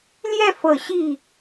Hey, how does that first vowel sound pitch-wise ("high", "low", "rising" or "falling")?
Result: falling